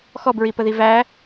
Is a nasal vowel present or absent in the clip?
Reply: absent